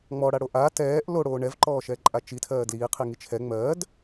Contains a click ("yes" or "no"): yes